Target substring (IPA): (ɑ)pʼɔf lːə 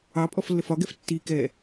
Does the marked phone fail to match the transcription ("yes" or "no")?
no